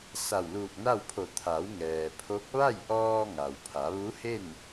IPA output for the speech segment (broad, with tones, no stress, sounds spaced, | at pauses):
s a˧˩ w l uː˧˩ k̚ n a˥˨ w pʰ o˧˩ t̪ʰ a˩˧ w ŋ ɛː˩ pʰ o˧˥ k̚ ʋ a˥˨ j ʔ ɔː˧ ŋ a˩ w pʰ a˩˧ ʋ u˧˥ h e˥˨ n